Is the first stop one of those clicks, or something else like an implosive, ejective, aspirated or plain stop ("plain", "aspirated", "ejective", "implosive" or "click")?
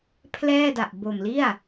aspirated